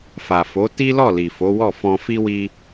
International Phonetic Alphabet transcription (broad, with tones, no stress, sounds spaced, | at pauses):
f a˨ f o˨˦ t i˦ l ɔ˦˨ l i˨ f o˨˦ w ɔ˦˨ f ɔ̃˧ f i˦ w i˦